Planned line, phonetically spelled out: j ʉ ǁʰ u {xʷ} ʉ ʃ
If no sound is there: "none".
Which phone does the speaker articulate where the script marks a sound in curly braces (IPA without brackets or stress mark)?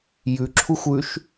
xʷ